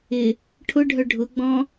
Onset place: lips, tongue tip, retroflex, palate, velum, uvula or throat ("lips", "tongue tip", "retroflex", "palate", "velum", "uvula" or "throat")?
retroflex